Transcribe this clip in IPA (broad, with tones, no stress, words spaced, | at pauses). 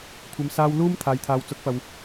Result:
kʷʰɐ˨msaː˧w luː˧m t̪ʰaː˨jt̪ʰaː˨wt͡sʊ˨˥k̚pɐ˨w